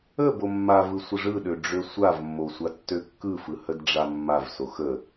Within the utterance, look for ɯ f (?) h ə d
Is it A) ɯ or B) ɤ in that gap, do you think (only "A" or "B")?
A